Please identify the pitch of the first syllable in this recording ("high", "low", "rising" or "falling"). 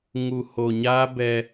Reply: low